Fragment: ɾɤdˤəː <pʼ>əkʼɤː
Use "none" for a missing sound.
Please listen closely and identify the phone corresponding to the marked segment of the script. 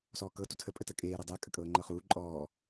kʼ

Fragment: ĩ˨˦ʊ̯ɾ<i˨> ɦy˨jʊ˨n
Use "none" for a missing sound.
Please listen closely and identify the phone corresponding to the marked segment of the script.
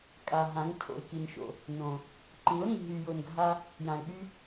ĩ˨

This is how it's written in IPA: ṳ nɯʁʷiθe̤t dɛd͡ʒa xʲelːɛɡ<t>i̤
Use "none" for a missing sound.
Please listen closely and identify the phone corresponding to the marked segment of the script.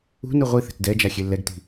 t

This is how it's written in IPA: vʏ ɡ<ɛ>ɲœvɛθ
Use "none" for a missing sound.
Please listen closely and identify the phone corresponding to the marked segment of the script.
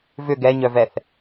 ɛ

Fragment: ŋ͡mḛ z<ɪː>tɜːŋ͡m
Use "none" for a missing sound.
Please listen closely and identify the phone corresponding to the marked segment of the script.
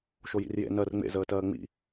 əː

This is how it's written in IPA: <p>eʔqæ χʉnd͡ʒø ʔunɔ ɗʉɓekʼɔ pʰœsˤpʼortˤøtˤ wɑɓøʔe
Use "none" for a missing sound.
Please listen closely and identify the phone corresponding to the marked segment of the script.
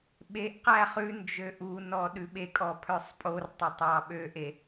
ɓ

